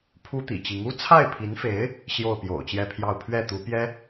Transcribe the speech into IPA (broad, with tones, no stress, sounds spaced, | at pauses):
pʰ u˥ t̪ ḭ˨˩ t͡ɕ i˧˥ ŋ u˥ t͡sʰ a˥˩ ɪ̯ pʰ i˧˥ n f e˧˥ ɪ̯ | ɕ j o˥˩ ʊ̯ p j o̰˨˩ ʊ̯ t͡ɕ j ɛ˥˧ pʰ j ɑ˥˧ ʊ̯ pʰ ɥ ɛ˥˩ t̪ u˧˥ p j ɛ˥